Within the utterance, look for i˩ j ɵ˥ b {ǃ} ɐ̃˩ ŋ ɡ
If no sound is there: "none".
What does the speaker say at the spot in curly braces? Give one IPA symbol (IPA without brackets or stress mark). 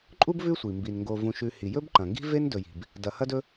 ǃ